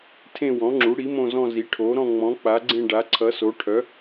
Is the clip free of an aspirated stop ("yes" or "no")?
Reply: no